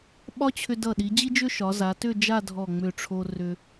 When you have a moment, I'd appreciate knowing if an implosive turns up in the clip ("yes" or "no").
yes